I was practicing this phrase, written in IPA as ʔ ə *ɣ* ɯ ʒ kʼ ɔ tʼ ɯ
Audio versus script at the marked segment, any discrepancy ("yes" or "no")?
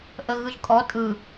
no